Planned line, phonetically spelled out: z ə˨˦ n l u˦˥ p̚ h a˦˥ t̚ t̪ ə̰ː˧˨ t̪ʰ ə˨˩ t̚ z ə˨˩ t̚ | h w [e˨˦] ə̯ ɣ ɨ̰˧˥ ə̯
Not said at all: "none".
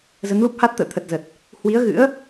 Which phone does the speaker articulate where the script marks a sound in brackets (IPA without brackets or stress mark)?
i˨˦